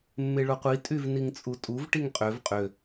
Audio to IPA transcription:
mː e ɭ o qʷ i tʼ y v n i ŋ t͡sʼ u tʼ u v ʈ i ŋ qʼ ø v qʼ ø

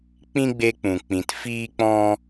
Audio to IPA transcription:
k͡p ĩ˦ ɡ͡b e˧ k͡p ũ˨ k͡p ĩ˨ t f iː˦ k͡p ɔ̃˦

